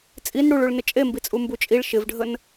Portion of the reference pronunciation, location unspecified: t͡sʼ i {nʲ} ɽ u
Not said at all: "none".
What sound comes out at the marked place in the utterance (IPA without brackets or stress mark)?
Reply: n